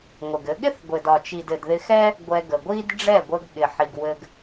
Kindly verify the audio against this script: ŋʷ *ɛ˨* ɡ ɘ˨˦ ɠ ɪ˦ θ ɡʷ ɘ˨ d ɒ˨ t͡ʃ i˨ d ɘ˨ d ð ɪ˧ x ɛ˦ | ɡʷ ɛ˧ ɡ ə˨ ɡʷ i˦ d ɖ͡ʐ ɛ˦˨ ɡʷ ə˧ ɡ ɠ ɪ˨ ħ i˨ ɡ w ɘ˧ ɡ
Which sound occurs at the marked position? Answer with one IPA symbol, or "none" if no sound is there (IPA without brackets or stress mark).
ɪ˨